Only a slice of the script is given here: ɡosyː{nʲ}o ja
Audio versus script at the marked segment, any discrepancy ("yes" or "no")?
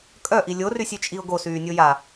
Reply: no